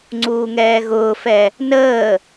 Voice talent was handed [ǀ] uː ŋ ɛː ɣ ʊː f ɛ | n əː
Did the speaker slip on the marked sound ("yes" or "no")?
yes